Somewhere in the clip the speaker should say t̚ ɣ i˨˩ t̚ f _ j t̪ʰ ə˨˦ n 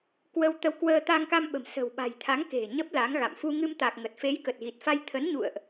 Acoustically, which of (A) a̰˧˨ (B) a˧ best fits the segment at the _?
B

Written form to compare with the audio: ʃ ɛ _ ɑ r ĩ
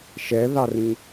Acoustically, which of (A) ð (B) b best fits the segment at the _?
A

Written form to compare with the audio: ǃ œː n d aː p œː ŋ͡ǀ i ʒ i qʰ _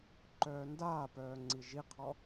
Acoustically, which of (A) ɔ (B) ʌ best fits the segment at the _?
A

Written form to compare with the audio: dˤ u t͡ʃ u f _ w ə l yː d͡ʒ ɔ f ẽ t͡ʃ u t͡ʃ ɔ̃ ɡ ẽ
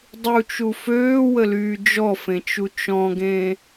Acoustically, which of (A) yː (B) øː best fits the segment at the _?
B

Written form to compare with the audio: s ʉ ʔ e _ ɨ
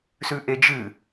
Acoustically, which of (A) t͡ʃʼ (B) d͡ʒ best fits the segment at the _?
B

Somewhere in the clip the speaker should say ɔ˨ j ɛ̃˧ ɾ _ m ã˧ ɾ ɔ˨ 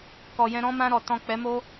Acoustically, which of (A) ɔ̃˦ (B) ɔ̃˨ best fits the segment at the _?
A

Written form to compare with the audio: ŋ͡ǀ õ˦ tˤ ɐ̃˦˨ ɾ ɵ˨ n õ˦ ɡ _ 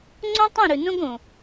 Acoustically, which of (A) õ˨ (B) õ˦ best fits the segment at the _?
A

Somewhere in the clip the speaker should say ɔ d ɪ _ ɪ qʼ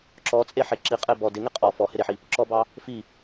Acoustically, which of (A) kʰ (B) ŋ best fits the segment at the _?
B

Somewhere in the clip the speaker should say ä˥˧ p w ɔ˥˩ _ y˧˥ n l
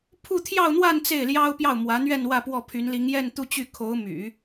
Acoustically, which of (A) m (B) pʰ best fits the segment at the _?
B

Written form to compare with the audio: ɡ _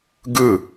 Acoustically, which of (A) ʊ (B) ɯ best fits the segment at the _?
B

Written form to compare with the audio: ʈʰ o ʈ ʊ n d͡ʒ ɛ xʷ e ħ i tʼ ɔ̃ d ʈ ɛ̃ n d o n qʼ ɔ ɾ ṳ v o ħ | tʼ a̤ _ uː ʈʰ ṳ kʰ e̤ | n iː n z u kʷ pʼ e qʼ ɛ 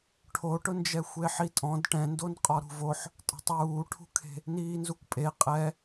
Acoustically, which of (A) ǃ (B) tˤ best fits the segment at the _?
B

